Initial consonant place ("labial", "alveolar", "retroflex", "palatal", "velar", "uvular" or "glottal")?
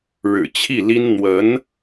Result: retroflex